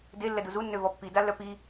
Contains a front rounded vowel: yes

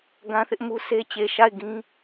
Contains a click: no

